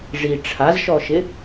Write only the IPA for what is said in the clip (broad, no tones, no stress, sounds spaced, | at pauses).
ʐ i ʈ͡ʂʰ a z ʃ ɔ ʃ ɪ